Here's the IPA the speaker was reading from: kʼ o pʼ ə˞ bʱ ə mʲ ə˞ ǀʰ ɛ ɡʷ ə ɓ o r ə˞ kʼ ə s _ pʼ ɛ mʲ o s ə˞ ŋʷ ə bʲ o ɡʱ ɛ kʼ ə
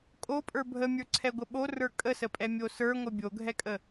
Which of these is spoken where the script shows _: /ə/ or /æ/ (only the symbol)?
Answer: ə